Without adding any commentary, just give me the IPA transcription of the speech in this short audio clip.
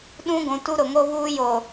ɗ ũ˦ ɡʷ ũ˨ t u˦ ɾ ʊ˨ ŋ o˦ β uː˦ j o˨

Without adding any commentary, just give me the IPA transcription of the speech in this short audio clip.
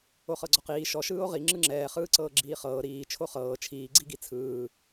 o χ ɤ ɡ͡ǀ ɔ q iː ʃ ɔ ʃ ɯː o̯ ʁ i ŋ͡ǁ ɯ ŋ͡ǁ ɛː χ ɯː ǀ ɤː ɡ͡ǁ iː χ ɤː ɾ iː t͡ʃʰ o χ ɤː t͡ʃʰ iː ɡ͡ǀ i ɡ i t͡sʰ ɯː

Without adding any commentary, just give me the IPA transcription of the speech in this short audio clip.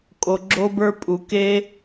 kʼ o˩ ɡ͡ǁ o˧ b ə˞˧ pʼ u˩ k e˧

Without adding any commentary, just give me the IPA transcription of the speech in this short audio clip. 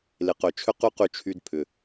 l ɪ˨ q ø˨ t͡ʃʰ ʏ˦ q y˦ q y˧ t͡ʃʰ y˧ d pʰ ʏ˨

